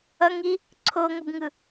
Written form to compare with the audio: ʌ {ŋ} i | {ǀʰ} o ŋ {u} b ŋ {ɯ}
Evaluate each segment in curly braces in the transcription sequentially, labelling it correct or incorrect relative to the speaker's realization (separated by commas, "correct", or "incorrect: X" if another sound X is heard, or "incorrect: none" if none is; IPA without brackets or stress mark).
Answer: correct, correct, incorrect: o, correct